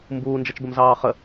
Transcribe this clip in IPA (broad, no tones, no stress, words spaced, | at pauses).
mbuːnd͡ʒət͡ʃbəmzɑː χə